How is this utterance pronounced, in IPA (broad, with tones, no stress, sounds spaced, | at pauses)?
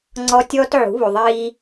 ŋ͡ǀ ɔ˦ tʲ ɔː˦ t ʕ ṳ˨˦ β u˨ ðˤ iː˦